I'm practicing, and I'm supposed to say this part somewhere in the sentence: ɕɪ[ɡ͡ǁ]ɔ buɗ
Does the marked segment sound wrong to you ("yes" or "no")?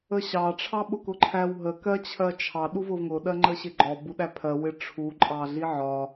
yes